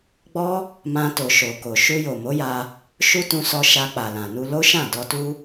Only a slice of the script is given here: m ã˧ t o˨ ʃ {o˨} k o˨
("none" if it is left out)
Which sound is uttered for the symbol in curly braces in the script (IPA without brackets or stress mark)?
o˨